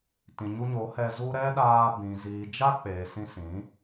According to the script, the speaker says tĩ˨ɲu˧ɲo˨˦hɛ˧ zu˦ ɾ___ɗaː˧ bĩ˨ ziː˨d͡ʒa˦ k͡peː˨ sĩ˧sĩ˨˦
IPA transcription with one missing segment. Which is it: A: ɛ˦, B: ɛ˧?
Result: A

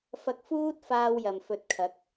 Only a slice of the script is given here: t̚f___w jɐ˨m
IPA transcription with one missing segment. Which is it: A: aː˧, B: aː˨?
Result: A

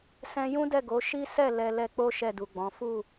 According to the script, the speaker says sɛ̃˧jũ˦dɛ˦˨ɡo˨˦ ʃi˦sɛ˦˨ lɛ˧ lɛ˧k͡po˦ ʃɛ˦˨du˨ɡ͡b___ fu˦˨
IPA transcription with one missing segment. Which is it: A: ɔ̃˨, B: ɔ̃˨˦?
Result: B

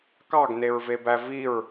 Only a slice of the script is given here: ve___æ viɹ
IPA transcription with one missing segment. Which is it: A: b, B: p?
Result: A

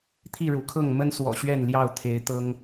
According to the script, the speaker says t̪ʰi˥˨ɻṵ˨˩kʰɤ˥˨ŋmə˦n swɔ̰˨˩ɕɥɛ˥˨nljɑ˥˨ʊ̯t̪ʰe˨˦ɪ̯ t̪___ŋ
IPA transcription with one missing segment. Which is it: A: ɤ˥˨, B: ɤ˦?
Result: B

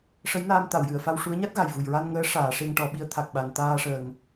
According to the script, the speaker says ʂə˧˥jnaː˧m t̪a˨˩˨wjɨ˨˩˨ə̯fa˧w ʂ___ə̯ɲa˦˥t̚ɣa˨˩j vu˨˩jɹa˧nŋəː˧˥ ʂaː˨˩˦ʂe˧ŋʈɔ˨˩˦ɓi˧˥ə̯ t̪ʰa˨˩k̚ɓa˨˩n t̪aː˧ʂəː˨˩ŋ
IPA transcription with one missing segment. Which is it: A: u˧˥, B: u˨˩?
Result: A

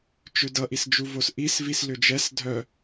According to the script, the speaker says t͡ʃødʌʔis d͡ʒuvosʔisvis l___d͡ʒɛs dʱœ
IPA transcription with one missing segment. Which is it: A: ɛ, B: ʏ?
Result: B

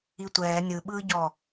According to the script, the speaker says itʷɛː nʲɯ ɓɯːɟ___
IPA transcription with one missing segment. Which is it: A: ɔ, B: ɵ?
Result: A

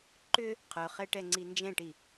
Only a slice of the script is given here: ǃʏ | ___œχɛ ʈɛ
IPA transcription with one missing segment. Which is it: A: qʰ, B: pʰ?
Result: A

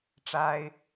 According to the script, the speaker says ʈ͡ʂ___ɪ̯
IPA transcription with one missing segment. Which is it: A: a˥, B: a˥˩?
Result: A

